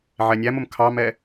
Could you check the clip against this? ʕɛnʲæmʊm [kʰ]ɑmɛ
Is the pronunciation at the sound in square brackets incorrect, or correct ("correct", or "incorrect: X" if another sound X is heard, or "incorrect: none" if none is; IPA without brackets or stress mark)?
correct